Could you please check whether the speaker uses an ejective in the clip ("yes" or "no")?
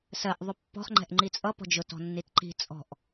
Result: yes